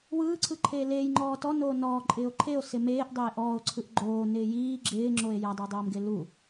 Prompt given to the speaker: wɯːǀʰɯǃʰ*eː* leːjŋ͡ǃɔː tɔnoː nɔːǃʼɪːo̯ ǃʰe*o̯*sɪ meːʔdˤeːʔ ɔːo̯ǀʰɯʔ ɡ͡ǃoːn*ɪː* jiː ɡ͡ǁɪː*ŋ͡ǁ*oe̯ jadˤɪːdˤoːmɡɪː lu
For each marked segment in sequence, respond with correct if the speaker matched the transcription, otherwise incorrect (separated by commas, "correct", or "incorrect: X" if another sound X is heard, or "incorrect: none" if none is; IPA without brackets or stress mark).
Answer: correct, correct, correct, correct